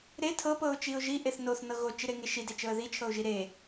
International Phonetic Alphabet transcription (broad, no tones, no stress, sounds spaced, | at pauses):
ɾ e tʰ ɤ p ɤ ʊ̯ t͡ʃ i ʊ̯ ʒ i ʔ e θ n o θ n ɤ ɣ o t͡ʃ i ɾ e ŋ e ʃ i d e t͡ʃ ɤ ə̯ ð i t͡ʃʰ ɤ ʊ̯ ʒ i ɾ e